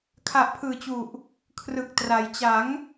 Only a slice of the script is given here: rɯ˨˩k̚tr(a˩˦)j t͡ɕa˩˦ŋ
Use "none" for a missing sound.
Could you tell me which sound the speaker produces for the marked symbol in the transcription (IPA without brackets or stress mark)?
a˩˦